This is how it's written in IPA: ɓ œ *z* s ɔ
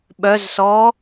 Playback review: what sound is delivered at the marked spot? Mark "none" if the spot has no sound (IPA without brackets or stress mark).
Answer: z